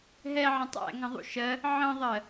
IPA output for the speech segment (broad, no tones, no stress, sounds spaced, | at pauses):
ɦ ɛ ʕ ə̃ tˤ æ̰ ŋ ə̃ ðˤ ṵ ʃ ɜ | ʕ ə̃ ðˤ ɜ